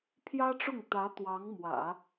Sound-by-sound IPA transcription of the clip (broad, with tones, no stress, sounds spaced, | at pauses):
pʰ j ä˥ ʈ͡ʂ ʊ˥˩ ŋ t̪ ä˧˥ t̪ w ɑ˧˥ ŋ m w ä̰˨˩˦